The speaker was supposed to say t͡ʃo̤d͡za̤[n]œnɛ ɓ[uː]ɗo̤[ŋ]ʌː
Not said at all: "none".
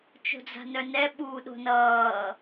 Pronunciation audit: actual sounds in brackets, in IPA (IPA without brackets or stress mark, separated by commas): n, uː, n